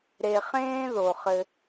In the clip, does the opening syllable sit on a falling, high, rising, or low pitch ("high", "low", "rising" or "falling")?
low